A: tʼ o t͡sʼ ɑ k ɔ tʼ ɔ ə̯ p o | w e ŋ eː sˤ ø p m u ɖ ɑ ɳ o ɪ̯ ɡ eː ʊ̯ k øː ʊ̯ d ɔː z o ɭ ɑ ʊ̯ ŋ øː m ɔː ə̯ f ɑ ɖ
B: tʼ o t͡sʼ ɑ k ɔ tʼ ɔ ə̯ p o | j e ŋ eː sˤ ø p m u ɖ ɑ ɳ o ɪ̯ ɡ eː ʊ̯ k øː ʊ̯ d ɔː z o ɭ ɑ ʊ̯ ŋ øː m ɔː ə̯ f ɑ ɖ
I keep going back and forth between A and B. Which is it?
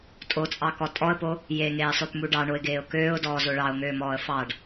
B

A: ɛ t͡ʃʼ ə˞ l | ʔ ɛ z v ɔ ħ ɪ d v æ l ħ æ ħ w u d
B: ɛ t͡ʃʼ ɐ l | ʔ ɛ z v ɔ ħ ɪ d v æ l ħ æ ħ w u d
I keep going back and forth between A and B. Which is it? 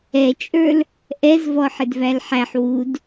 A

